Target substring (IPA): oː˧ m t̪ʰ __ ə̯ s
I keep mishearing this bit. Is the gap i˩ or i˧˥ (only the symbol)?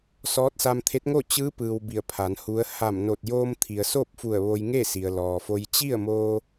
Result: i˩